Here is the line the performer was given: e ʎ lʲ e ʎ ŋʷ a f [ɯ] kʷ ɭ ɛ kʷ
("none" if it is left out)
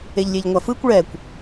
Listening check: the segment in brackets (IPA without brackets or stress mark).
ɯ